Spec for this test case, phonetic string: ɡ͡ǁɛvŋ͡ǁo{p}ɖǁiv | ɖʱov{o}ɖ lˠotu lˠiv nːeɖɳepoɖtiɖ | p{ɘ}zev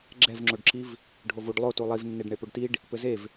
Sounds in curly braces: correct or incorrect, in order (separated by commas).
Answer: incorrect, incorrect, correct